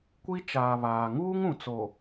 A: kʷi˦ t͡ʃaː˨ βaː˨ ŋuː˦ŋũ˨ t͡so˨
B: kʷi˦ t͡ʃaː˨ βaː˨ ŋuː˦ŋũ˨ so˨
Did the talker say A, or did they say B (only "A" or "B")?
A